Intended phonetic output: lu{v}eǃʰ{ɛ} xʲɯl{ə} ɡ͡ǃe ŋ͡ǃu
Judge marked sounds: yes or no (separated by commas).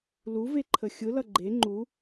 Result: yes, no, no